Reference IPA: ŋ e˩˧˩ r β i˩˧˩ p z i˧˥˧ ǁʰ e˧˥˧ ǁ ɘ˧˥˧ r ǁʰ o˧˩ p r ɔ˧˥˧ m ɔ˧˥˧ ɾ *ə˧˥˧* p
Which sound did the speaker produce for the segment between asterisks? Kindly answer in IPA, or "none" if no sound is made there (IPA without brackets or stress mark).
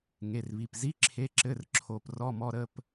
ə˧˥˧